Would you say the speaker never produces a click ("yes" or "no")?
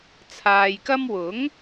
yes